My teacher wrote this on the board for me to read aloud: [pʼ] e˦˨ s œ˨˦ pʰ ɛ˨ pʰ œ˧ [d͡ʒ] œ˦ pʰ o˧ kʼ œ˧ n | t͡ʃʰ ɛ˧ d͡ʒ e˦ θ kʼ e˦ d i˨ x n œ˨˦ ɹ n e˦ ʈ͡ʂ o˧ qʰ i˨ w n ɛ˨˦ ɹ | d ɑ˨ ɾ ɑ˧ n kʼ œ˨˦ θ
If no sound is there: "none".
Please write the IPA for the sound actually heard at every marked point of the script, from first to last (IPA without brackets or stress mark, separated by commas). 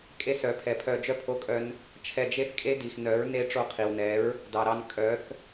kʼ, d͡ʒ